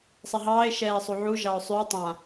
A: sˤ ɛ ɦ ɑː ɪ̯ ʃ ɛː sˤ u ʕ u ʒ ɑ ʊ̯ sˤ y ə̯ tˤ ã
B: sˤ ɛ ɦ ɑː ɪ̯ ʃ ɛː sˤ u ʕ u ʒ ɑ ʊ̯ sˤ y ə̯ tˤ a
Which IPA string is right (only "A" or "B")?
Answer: A